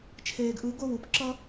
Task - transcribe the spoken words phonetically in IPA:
t͡ʃʰ eː˨ ɡ ʔ ɯ˨˦ ɡ o˦˨ w u˨˦ p ǁ ʌ˦

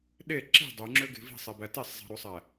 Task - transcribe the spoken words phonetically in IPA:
ɗ e ǁ i̤ dˤ ø ŋ͡ǁ ø ɡ e̤ v i̤ sˤ e b æ t e sˤ zˤ e̤ ɾ u sˤ æ

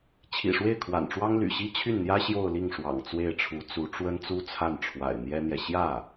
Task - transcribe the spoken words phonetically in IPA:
t͡ɕʰ ḭ˨˩ ʂ w e˥˩ ɪ̯ kʰ w a̰˨˩ n ʈ͡ʂ w ɑ˥ ŋ l y̰˨˩ ɕ i˥ t͡ɕʰ y˥˩ n n̪ j ä˥ ɕ j o˥˧ ʊ̯ l i˥˩ ŋ ʂ w ɑ̰˨˩ ŋ t͡s w e˥˩ ɪ̯ ʈ͡ʂʰ u˧˥ t͡s u˧˥ ʈ͡ʂ w ə˥ n t͡s u˥ t͡sʰ a˥˩ n ʈ͡ʂʰ w a̰˨˩ ɪ̯ n̪ j ɛ˥ n̪ j ɛ˨ ɕ j ä˥˩

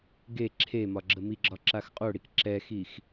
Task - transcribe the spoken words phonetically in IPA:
ɡ e ǁʰ e m ɒ ɡ͡ǁ ə m i ɡ͡ǁ ɒ ǁ a x qʼ o ɽ i k ǁ ɛ x i x

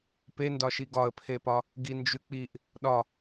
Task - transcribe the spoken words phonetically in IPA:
p e n d ɒ ʃ i ɡ ɒ ə̯ pʰ e p ɒ | ɡ i n d͡ʒ ʉ k͡p i ʔ | ɗ ɒ

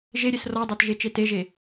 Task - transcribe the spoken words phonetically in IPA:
ʒ e ɾʲ e s r ɔ dˤ ə˞ t ʒ e t͡ʃ e t e ʒ e

